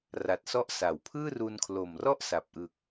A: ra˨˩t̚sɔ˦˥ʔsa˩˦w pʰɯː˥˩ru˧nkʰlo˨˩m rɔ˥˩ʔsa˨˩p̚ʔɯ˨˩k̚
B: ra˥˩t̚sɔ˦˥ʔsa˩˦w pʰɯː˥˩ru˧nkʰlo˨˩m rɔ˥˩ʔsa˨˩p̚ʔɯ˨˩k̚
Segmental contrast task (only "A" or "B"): A